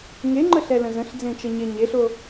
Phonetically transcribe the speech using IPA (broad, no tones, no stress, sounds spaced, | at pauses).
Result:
ŋ e ŋ͡ǃ ə ɬ ɛ l ə̃ z ə̃ ɬ d͡z ẽ t͡ʃ ə ɲ e ɲ e ɬ o